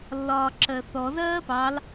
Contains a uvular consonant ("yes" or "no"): no